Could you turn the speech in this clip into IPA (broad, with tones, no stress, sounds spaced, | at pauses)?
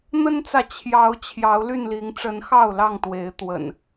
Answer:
n̪ ə˦ n t͡s ä˨ t͡ɕʰ j ɑ˨˦ ʊ̯ t͡ɕʰ j ɑ˨˦ ʊ̯ l y˥˨ n l i˨˦ ŋ ʈ͡ʂ ə˨˦ n x ɑ˥˨ ʊ̯ l ɑ˥˨ ŋ t̪ w e˨˦ ɪ̯ t̪ w ə̰˨˩ n